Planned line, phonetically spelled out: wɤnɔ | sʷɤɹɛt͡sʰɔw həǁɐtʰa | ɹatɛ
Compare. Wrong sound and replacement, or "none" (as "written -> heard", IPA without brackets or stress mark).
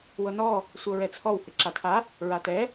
ɐ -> a